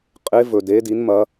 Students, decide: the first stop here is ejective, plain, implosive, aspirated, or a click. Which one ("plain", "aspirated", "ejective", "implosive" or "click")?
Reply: ejective